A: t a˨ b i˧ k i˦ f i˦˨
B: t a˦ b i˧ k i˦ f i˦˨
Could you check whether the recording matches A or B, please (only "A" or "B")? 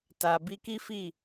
A